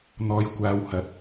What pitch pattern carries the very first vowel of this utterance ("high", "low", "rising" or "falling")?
low